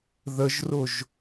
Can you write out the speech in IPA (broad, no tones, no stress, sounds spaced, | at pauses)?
ð ə ʒ r ʊ ʒ